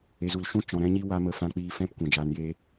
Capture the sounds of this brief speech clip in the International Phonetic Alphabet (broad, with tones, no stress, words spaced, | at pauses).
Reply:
e˨zu˨lʃũ˦ t͡ʃɔ̃˨ɾɛ̃˧ɲi˧wa˧ mə˧fã˧k͡piː˧ fɛ̃˦˨pkʷɛ̃˨ d͡ʒaː˧njeː˦